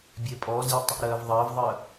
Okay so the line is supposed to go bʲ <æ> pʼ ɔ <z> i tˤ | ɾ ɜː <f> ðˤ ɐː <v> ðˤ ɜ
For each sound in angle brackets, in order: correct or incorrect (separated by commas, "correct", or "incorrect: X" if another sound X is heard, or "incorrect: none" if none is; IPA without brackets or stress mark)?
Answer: incorrect: ɛ, correct, incorrect: v, correct